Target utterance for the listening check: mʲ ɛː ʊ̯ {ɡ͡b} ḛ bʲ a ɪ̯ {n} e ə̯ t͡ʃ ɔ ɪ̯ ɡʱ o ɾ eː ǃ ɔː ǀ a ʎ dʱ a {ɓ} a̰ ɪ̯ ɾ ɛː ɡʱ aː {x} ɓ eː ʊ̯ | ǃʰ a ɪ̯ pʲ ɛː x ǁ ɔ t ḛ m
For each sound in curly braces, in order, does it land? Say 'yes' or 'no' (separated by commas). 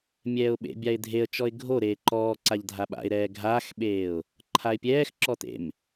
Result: no, no, yes, yes